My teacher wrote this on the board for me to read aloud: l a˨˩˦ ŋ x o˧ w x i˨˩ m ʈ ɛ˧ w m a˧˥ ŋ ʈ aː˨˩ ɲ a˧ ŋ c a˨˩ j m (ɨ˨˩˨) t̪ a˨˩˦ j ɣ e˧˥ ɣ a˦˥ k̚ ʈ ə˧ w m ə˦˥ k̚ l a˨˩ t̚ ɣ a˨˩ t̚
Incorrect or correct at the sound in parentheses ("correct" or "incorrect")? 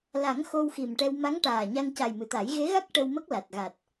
correct